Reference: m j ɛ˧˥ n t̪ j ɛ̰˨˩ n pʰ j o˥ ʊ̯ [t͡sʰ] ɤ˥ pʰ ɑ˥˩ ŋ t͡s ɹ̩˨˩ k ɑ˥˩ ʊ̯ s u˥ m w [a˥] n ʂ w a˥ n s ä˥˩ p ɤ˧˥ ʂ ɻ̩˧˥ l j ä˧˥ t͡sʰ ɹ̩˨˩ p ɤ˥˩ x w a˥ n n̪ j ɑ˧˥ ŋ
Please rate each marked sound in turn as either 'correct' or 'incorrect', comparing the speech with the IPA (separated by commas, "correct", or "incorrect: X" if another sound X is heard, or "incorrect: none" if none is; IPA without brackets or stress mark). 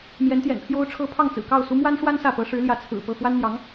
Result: incorrect: ʈ͡ʂʰ, correct